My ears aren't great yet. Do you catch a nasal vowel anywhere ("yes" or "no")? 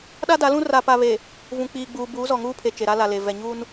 yes